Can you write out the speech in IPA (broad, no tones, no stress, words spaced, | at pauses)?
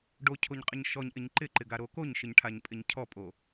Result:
ɖocʰoɲqʼɪɲ ʃɔɲʔɪɲ ǃɪǃɪɡaɾo koɲʃɪɲʈʰaɲpʼɪɲ cʰɔpʼo